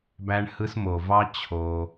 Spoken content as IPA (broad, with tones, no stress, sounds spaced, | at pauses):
b æ˦ ɳ h ɯ˦ s m o˨ v ɑ˦ t͡ɕʰ o˧